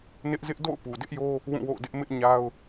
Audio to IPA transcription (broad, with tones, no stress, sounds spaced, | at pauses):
n ɪ˦ ʔ z ɪ˦ ʔ d o̰˦˨ ʊ̯ p u˨ d ɪ˦ ʔ j o˦ | w ũ˦˨ w o̰˦˨ ʊ̯ d ɪ˦ ʔ m ɪ˦ ʔ ɲ a˦ ʊ̯